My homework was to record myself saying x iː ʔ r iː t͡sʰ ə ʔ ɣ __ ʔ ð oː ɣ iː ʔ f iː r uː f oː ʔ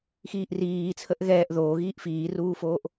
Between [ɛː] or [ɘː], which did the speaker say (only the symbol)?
ɛː